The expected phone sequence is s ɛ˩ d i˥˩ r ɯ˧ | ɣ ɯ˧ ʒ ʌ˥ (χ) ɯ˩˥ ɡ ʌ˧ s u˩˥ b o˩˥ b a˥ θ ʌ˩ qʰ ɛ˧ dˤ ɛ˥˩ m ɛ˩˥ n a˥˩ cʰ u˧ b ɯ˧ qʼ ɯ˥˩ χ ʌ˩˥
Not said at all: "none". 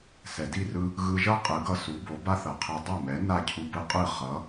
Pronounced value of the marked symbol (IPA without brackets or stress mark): qʼ